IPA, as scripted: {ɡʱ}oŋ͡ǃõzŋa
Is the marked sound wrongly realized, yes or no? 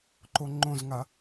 yes